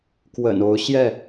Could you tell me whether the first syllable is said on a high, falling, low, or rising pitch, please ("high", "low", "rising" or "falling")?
low